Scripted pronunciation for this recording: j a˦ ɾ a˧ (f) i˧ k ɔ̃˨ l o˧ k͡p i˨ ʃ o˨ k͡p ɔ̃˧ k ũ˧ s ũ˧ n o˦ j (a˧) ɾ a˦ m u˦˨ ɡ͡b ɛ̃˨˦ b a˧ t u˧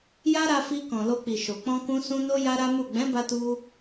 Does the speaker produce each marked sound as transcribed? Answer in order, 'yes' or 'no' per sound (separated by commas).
yes, no